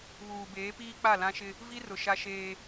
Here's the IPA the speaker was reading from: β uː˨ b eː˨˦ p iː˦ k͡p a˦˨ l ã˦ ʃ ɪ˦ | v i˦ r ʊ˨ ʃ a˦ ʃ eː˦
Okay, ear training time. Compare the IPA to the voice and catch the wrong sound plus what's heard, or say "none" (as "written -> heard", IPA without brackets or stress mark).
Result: none